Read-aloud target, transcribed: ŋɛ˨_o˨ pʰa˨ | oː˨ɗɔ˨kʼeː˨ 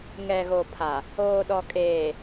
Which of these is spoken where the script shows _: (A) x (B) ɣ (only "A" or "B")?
B